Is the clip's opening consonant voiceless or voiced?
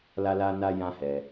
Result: voiced